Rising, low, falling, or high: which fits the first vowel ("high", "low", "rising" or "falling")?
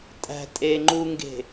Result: low